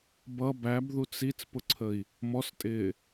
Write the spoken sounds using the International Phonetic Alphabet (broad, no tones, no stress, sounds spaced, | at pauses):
b ʌ b æ b ð u t͡s i t͡s p ʊ ǀʰ ə i̯ | m ɔ s tʼ ɪː